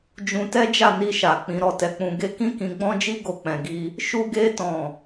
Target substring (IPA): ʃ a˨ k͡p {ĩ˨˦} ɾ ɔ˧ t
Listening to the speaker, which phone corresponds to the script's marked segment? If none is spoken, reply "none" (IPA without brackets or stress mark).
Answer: ĩ˨˦